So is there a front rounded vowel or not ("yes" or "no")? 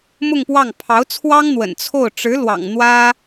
no